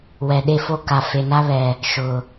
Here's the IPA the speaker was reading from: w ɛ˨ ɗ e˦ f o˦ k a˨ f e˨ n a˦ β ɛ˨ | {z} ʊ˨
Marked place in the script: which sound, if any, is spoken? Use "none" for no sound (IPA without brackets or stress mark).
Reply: ʃ